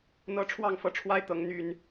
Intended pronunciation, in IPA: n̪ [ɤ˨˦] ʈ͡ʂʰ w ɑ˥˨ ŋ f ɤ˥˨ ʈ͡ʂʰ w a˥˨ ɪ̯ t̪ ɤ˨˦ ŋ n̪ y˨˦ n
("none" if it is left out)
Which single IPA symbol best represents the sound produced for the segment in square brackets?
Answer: ɤ˦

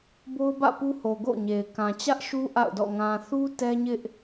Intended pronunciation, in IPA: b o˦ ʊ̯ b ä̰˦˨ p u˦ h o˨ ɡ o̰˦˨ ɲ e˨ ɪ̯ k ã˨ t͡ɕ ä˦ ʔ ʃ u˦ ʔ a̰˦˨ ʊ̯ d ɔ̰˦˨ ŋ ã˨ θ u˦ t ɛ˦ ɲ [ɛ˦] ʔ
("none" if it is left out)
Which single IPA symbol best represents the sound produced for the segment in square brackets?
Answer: ɪ˦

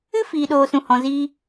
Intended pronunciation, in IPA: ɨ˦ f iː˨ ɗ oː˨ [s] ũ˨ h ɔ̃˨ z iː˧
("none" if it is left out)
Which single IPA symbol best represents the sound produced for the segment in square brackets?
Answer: s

